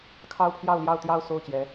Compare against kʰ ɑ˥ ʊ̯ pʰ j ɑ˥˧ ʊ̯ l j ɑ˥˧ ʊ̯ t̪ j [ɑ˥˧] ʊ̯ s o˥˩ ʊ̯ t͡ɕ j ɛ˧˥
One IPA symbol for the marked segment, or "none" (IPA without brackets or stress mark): ɑ˥˧